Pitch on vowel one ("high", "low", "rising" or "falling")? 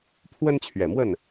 high